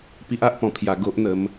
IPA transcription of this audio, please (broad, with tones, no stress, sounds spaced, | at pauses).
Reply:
p i˦ ʔ a˦ ʔ p ɔ̃˧ pʰ j a˧ ɡ o˦ ʔ n̪ ə˨˦ m